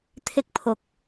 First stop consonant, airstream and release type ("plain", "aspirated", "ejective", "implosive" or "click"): aspirated